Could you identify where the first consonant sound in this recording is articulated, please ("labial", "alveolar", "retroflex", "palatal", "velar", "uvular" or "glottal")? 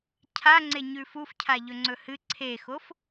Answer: palatal